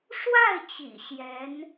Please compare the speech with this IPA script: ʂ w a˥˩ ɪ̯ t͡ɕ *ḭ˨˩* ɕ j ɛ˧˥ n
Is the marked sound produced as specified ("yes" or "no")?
yes